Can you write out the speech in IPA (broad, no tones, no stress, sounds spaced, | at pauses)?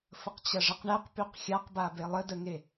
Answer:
f ə q t͡ɕ ɐ ʐ ə q ɳ ɛ q p y q xʲ a q b a b e lˠ ə d ə ŋ e